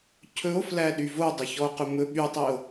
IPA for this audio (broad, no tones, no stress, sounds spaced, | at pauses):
cʰ ɵ o̯ f l æ ɗ y v o dˤ ɵ ç ɔ o̯ q ɵ m ɵ ɓ y tˤ i o̯